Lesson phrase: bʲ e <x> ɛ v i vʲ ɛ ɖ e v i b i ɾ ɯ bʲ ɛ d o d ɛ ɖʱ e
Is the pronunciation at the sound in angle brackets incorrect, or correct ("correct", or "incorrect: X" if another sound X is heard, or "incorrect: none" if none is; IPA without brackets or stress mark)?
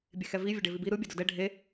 correct